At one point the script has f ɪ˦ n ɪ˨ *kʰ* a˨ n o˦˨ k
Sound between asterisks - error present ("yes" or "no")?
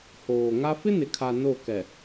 no